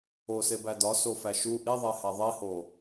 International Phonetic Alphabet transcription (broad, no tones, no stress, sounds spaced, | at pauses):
o s e b æ d ɒ s o f æ ʃ u ʔ i ðˤ e h æ ðˤ i h o